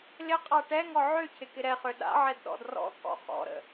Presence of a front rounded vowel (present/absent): present